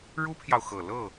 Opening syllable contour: high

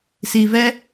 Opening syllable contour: low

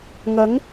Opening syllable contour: rising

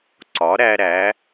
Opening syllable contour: rising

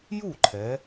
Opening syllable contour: falling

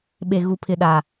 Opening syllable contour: low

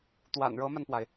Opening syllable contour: low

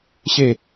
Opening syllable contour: falling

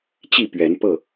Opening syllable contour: falling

